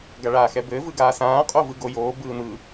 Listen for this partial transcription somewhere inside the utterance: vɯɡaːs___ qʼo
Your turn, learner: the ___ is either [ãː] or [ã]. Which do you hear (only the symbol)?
ãː